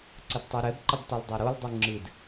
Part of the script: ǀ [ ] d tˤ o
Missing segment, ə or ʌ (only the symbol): ə